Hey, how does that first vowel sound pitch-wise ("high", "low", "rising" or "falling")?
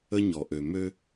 high